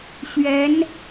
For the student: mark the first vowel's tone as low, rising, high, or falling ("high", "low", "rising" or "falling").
rising